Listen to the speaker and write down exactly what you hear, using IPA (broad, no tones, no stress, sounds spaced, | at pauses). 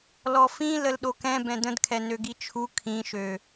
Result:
l ɔ f ĩ l ə l ɗ o k ɛ̃ b ɛ̃ d ə̃ d kʰ ɛ n ø ɡ i t͡ʃʰ u kʰ ĩ ʃ ø